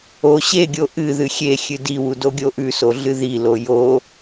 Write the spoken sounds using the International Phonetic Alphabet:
o ɕ e ɡʲ o ʔ ɨ ð ɨ xʲ e xʲ ɨ d i w u d o ɡʲ o ʔ ʉ s o ɮ ɨ ð i l o j o

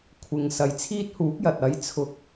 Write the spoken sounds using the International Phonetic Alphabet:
kʷʰ ɪ˨ ŋ s ɐ˨ j t͡sʰ iː˥ t̚ h uː˨˥ k̚ j ɐ˨ t̚ ɐ˨˥ j t͡sʰ ʊ˨˥ k̚

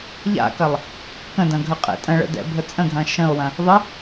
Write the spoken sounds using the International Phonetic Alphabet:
ʎ a̰ k ɐ lˠ | k ə̃ d ɐ̃ ɡʱ ə qʼ ɛ̰ tʼ ə̃ ɭ ə̰ d ɛ̰ bʱ ə t͡sʼ ə̃ ɡʱ ɐ̃ ʃ ə̃ o̯ w ɐ̃ | ðˤ ə

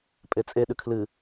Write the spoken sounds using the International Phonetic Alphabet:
pʼ e t͡sʼ e ɗ ʉ kʰ l ɨ

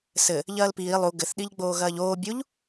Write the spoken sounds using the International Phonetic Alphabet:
s ɘ | ʎ ɐː l p iː lˠ u ɡ ɘ θ ɗ i ʎ ɡ͡b oː ɣ ɐː ʎ oː bʲ u ʎ

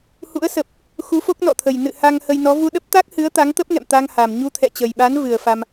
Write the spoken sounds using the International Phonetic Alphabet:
h ṵ˧˥ ə̯ s ə˨˩ p̚ | x u˨˦ f o˦˥ k̚ n ɔ̰˧˨ t̪ʰ ə˨˩ j n ɨ̰˧˨ h a˧ ŋ h ə˧ j n ɔ˨˦ v u˧ ɗ ə˦˥ p̚ t̪ a˦˥ k̚ h ɨ˨˦ ə̯ t̪ a˨˦ ŋ t̪ ə˦˥ p̚ ŋ ɛ̰˧˨ m t̪ a˧ ŋ h a˨˩ m ɲ u˧ t̪ʰ ɛ̰˧˨ t͡ɕ ə˨˩ j ɓ a˨˦ n v ɨ˨˩ ə̯ f a˧ m

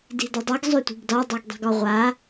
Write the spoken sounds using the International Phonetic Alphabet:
d i̤ d ʌ dˤ ʌ ɡ zˤ ø tʷ i̤ ɡ d ɒ dˤ o ɡ dˤ i̤ ɡ ɒ ʁʷ a

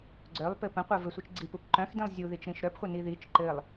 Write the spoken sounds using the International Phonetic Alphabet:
ɡ͡ǀ œ lˠ p ɘ p ə̃ qʷ œ v ɘ sʷ i t͡ʃ ɡ͡ǀ i p u p ǃ œ̃ x d ĩ lˠ zʲ u ð i t͡ʃ ɾ ĩ ʃ ɾ œ p χʷ ə n i ð i t͡ʃ ǃ ɘ lˠ

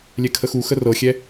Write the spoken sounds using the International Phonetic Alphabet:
lʲ ɛ kʰ ə x u x ə r ɤ xʲ ɛ

